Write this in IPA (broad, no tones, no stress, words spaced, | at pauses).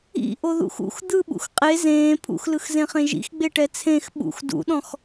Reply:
ḭ ʔoðṵxṵx d̪ɯɓṵx qʼe zẽː pʰṵxlɯxzẽχẽ ʒḭxɡ͡beʈɛ t͡sʰẽx ɓṵx dṵɗɔ̃x